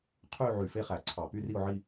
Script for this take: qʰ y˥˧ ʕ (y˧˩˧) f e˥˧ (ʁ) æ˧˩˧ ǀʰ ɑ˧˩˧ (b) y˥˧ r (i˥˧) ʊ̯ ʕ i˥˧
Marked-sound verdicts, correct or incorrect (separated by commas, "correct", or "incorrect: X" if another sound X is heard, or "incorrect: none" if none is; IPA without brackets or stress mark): correct, incorrect: χ, incorrect: p, correct